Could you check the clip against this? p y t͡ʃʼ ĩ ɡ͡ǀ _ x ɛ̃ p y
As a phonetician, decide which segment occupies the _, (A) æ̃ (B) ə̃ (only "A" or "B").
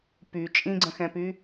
B